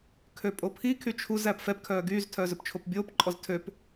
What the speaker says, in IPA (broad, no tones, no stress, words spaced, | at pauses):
kʰøpʼopʰi kʰyt͡ʃʰuz æpfɛp kʰœːɡyːz tʰœːzɵpt͡ʃʰopbʲoːp ǃʼɔztʰøp